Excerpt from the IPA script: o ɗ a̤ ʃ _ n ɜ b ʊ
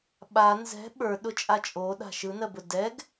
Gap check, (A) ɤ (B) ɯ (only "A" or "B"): B